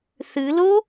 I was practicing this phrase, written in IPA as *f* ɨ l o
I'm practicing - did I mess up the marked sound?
yes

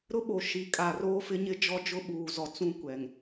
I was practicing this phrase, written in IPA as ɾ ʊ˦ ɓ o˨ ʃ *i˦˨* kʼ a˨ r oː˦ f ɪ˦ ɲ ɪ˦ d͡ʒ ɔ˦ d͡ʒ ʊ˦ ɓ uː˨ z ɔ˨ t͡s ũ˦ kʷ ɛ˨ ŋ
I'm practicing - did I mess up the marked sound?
yes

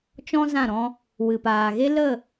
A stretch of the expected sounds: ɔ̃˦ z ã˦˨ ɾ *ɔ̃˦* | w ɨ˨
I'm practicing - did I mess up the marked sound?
yes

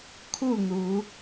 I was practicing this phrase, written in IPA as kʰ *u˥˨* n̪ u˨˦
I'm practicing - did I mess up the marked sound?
no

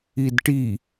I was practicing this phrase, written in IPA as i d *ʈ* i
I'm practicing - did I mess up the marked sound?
no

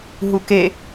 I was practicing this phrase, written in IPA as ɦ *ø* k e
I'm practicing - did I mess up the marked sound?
yes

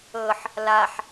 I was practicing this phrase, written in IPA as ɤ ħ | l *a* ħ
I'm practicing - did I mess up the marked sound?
no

